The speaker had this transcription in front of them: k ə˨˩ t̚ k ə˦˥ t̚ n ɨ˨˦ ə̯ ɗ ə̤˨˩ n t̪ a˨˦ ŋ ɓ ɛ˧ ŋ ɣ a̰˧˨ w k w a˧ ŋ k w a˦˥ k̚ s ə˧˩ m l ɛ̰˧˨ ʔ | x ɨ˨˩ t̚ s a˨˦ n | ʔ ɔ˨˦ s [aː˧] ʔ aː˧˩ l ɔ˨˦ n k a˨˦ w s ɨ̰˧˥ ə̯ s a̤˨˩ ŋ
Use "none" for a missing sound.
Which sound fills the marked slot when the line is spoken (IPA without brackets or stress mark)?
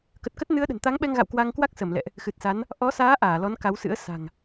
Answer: aː˨˦